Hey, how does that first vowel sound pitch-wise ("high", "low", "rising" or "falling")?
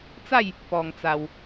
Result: falling